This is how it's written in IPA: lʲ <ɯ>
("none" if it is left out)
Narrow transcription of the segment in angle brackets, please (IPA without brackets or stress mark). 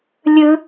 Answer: ɯ